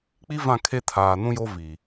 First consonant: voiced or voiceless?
voiceless